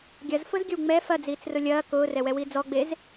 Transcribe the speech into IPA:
ɡʲ ɐ z f ʊ z ɡʲ ə w ŋ͡m ɛ f ɐ d͡z iː t͡s r ʊ lʲ ɐː k ʊː r ɛ w ɛ w i d͡z ɔ ɡ͡b e z

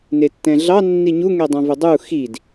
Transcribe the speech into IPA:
n e tː ɛ̃ ɮ ɑ nː i ɲ u ŋ ɛ dˤ ã v ʊ dˤ u x i d

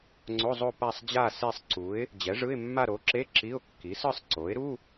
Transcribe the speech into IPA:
ŋ͡ǀ o˧˥˧ zˤ o˥˧ p a˥˧ sˤ d͡ʑ a˥˧ s e˥˧ sˤ ǀ u˩˥ ɪ̯ | d͡ʑ ɛ˩˥ ʐ ɯ˧˥˧ ɪ̯ mː a˥˧ ɾ o˩˥ ǁ e˧˥˧ ǁ i˧˥˧ ʊ̯ kː i˩˥ s ɯ˥˧ sˤ ǀ o˩˥ ɪ̯ ɾ u˧˥˧

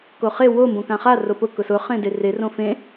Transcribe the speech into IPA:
k o χ e w o m b õ k ã χ a r o p ʊ k ʊ s ʊ χ ẽ d e r e r õ f ẽ

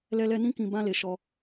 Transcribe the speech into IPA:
l ɛ˧ l ɛ˧ n ĩ˦ k ĩ˧ b ã˧ l e˨ ʃ ɔ˧

